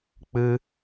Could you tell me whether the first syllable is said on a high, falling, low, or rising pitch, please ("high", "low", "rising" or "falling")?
high